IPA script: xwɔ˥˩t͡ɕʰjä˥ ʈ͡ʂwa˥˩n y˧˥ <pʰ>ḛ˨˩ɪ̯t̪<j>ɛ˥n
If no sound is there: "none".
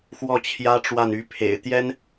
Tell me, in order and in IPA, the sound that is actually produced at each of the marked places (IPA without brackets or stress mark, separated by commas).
pʰ, j